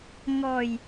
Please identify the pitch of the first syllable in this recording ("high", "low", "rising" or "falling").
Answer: low